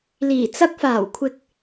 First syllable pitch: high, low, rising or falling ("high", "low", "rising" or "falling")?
low